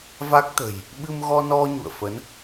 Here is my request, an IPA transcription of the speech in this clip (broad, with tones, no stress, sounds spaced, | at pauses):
v a˦˥ k̚ t̪ ə̤˨˩ j | ɓ ɨ˧ m ɣ ɔ˧ n ɔ˧ ɲ ṵ˧˨ ə̯ f ə˨˦ n